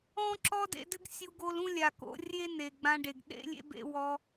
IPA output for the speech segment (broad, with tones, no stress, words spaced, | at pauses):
ɔ̃˦ǁɔ˦dḛ˧dɘ˦ɡ sʲu˧ɡo˧l ũ˦lʲa˨ko̰˧ rʲe˦ne˨ɡ͡bã˧ɖe˨ɡ ɗḛ˦lʲḛ˦bḛ˦ wɔ˧